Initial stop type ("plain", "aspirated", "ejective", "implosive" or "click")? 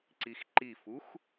click